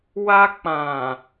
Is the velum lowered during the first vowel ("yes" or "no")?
no